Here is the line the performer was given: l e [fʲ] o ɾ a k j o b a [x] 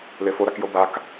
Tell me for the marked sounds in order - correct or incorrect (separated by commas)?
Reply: incorrect, incorrect